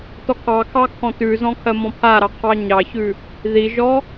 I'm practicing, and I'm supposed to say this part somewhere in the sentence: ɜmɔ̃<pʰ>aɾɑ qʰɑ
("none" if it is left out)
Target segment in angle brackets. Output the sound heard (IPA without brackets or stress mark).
pʰ